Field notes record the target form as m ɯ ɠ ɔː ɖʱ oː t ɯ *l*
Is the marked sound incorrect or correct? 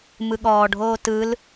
correct